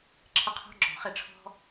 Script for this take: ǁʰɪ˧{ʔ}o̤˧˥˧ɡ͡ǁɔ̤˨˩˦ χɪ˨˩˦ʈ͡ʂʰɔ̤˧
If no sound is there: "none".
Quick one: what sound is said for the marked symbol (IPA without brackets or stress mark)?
qʰ